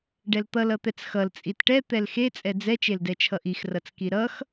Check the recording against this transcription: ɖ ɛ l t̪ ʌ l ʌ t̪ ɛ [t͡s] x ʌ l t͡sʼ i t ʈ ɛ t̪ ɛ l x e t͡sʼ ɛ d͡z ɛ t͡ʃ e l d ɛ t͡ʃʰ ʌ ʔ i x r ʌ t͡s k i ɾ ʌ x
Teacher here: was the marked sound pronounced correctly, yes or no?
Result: yes